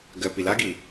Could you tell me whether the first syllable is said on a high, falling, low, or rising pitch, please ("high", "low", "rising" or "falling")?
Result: low